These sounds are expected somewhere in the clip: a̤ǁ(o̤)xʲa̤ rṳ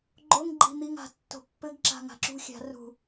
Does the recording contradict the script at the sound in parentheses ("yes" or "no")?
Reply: yes